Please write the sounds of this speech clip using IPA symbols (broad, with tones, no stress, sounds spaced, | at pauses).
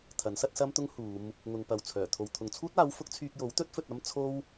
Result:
t̪ʰ ɐ˨˥ n s ɐ˥ t̚ s ɐ˥ m t̪ ʊ˥ ŋ h uː˨˧ m | ŋ ʊ˨ ŋ p ɐ˨ w t͡sʰ œː˨˩ t̪ʰ o˨ w t̪ʰ ʊ˨ ŋ t͡sʰ uː˥ t̚ aː˨˥ w f ʊ˨˥ k̚ t͡sʰ yː˧ k̚ j o˨˥ w t̪ ɵ˥ t̚ f ɵ˧ t̚ ɐ˥ m t͡sʰ o˥ w